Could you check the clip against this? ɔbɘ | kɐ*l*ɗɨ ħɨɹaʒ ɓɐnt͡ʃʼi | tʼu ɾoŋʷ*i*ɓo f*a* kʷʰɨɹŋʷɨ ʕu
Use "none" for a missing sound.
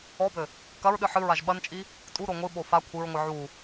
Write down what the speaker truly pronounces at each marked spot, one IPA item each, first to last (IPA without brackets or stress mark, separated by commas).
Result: ɹ, ɨ, a